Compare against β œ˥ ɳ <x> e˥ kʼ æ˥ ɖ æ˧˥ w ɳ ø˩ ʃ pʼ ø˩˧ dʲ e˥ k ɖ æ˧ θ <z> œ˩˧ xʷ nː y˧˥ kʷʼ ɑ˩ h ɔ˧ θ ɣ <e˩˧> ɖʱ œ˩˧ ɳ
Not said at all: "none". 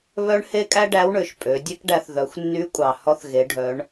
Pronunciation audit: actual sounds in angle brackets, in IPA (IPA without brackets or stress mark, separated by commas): h, ð, e˩˧